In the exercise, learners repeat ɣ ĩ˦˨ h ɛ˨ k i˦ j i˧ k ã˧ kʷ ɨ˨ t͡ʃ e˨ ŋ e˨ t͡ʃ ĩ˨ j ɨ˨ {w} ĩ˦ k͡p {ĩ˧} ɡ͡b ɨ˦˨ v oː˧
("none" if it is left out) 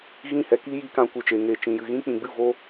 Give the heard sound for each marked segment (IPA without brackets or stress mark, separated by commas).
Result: ɣ, ĩ˨